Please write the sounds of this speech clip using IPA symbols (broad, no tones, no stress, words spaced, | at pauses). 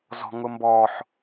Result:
zɔ̤ŋʊmbɔħ